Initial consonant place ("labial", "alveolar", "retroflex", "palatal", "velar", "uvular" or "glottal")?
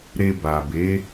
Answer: alveolar